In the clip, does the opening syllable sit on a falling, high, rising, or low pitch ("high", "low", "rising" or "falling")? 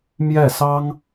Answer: falling